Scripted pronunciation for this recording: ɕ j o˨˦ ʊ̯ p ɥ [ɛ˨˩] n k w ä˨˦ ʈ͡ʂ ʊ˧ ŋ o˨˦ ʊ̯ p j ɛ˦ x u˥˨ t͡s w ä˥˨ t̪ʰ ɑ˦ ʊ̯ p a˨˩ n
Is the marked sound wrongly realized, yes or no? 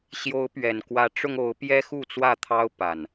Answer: no